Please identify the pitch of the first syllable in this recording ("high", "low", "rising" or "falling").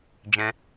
high